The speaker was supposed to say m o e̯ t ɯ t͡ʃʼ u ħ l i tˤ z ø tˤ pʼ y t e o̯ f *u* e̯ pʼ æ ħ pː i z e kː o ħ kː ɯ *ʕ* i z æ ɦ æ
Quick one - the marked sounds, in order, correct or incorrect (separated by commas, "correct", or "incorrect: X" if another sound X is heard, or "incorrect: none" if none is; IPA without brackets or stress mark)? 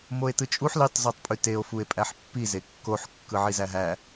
correct, correct